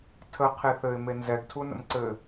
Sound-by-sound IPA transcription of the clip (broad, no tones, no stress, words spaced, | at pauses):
tʰə qʰeθɘɪ̯ menzɛɡtʰu nə̰mǀɘ